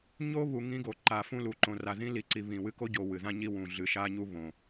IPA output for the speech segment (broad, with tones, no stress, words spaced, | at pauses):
ɲo˦βu˨ ŋĩ˦ɡo˨ ǃa˨fũ˦lu˨ǃõ˨ ra˨ðĩ˦li˨ǀi˨ βĩ˨wɨ˦ ko˦ɟo˨ wɨ˨ðã˦ɲi˦wũ˨ ɮɨ˨ʃa˦ɲu˦ βõ˨